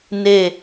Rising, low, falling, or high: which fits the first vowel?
falling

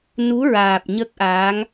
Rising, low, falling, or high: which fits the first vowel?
rising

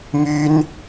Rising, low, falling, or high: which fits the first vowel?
high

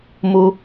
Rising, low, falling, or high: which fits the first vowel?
high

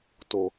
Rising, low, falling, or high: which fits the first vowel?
low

